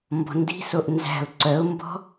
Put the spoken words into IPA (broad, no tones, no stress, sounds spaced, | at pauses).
m b ɔ̤ n d i̤ s o ʔ n z æ̤ ʊ̯ ǀ œ ʊ̯ m b ɔ̤